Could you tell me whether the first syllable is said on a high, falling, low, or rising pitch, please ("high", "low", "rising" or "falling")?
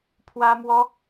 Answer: high